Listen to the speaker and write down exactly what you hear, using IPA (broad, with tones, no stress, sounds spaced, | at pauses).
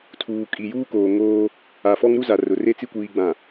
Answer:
tʰ uː˨ kʼ i˨ j uː˦ k oː˨ ŋ oː˦ | a˨ f ɔ˦ ŋ ɾ u˦ z a˨ r ʊ˨ r e˦ t͡s i˦ kʷ iː˨ ɡ͡b ã˨